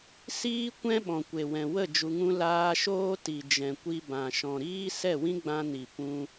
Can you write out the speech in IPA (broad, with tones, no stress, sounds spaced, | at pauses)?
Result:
s iː˦ kʷ ɛ̃˦ ɓ ɔ̃˨ kʷ e˨ w ɛ̃˨ w ə˦˨ d͡ʒ u˧ ŋ ũ˦ l aː˧ ʃ oː˦ t i˨ d͡ʒ ɛ̃˨ kʷ i˧ b ã˨ ʃ ɔ̃˨ ɾ iː˦ s ɛ˦˨ w ĩ˦ ɡ͡b ã˧ n i˨ p ũ˧